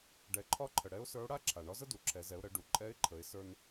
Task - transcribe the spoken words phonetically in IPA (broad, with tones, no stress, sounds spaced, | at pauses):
ɖ ɛ˩˧ ǃʰ ɒ˧˥ ǃʰ ə˩ ɽ ɛ˧˥ ʊ̯ s ə˞˧˥ ʊ̯ ɽ a˥ ǁʰ a˩ ɳ ɒ˧˥ z ə˥ d u˩ ǁʰ ɛ˩˧ z ɛ˩˧ ʊ̯ ɾ ə˩˧ ɖ u˩ ǃʼ ɛ˧˥ ɪ̯ ǃʰ ə˩˧ ɪ̯ s ə˞˧ n